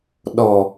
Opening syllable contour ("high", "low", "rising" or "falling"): low